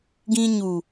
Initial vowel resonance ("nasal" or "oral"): nasal